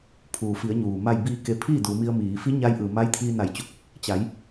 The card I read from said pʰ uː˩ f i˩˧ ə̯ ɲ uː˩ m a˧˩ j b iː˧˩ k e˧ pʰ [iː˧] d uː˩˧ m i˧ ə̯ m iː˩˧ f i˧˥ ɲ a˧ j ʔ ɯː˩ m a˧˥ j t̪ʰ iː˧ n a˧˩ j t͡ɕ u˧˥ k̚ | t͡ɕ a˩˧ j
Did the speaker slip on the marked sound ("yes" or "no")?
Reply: yes